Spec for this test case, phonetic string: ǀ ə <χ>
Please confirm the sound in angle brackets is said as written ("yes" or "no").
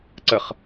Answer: yes